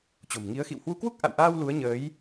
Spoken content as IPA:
t͡ɕo̤˨˩mŋi˨˦ə̯ xḭ˧˨whwu˧kwu˦˥k̚ ʔa̰˧˨wʔaː˧w lu˨˦ə̯ɲəː˨˦j

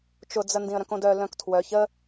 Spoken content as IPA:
t͡ʃʊd͡zə ndĩə̯ɾœ̃kõdœ lœ̃ktʰwœç ə

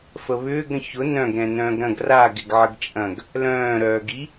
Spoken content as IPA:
fəβʏːɡ ɾə̃çʊ nœ̃ɡɾɛ̃ nœ̃ːɡɾɐ̃ɡ ra ɡɪɡʕəɡt͡ʃʼɐ̃ɡ | lœ̃ːɾœːɡi

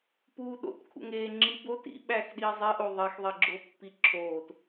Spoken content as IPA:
puːɗo̰t kʰṵŋeːŋ͡ǁi bo tḭ ɓæːxɗiːzˤe ʔoðˤix ðˤeɡ͡ǁo pːiǁʰoːt

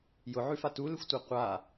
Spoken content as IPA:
jʊʕʉfa tulɪxʷtʷa qʷa

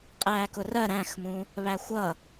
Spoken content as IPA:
qʼæːkʊrɜ ɾæ̃xmũ | βæxʷʌ

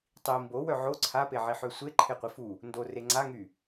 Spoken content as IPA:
tˤi mbowœ ʕo ǀʰapeʕiħø sʷe ǃʰeqʷifu | ndore ŋ͡ǀaŋy

